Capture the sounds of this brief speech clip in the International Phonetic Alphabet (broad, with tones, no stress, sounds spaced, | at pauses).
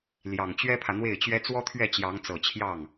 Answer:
l j ɑ˨˩ ŋ t͡ɕ ɥ ɛ˥ pʰ ä˨ n̪ w e˥˩ ɪ̯ t͡ɕ ɥ ɛ˥ t͡s w ɔ˥ t̪ʰ ɥ ɛ˥˩ t͡ɕ j ɑ˧˥ ŋ t͡s ɤ˨˩ t͡ɕʰ j ɑ˥˩ ŋ